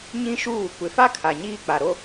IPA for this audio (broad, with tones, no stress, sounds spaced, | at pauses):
ɲ ĩ˦ ʃ uː˦˨ kʷ ɪ˨ f a˦ kʰ a˨ ɲ iː˦ k͡p a˨ ɾ o˦